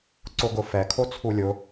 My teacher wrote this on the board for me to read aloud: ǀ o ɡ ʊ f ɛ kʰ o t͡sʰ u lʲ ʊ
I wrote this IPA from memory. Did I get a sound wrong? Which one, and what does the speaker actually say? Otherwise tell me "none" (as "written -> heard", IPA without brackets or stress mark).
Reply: none